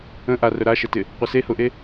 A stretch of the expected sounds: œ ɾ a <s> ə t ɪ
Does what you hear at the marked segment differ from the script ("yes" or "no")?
yes